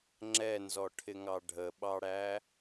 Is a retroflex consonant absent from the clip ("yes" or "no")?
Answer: no